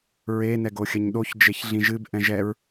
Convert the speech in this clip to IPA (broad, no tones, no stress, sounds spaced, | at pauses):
ɹ e n ɛ ɡ o xʲ ɐ ɲ ɗ o ç d͡ʒ e ç ɮ ĩ ʒ ɨ b ʔ ɛ̃ ʒ ɛ ɹ